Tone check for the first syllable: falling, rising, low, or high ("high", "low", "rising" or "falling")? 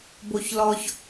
low